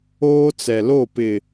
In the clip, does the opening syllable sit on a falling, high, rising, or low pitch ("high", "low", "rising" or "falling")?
high